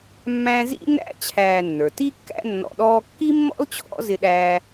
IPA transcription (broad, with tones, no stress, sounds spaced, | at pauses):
mː æ̃˦ z ḭ˥ n æ̰˥ t͡ɕʰ æː˨ nː ə˞˩ t i˦ kː æ̰˦ nː ɔ̰˨ ɗ ɔː˦ kː i˥ mː ɔ̰˥ l t͡ɕʰ ɔ̰˦ z ɪ˦ ɗ æː˦